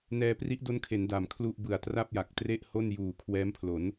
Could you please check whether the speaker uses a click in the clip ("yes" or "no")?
no